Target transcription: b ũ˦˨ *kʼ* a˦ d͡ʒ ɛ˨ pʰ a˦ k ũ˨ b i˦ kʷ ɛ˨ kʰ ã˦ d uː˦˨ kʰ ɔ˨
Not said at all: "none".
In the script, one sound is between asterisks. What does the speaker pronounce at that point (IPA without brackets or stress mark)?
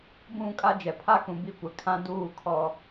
kʼ